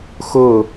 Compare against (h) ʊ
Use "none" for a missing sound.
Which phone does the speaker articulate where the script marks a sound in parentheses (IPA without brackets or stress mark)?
x